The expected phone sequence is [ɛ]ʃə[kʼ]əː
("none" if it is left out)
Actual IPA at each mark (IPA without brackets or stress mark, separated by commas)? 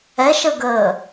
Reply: ɛ, ɡ